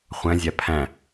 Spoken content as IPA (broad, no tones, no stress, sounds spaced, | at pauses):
χʷ æ̃ zʲ æ pʰ æ̃